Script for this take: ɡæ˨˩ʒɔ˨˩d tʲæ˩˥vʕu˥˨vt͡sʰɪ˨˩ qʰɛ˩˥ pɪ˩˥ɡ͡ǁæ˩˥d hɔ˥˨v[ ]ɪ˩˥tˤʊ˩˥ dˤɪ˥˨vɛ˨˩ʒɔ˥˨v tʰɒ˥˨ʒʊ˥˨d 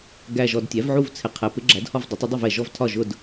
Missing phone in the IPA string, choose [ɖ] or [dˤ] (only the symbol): dˤ